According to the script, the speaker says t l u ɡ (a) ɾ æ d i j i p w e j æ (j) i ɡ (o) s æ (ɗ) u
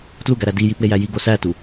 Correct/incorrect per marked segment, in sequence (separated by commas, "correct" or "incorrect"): incorrect, correct, correct, incorrect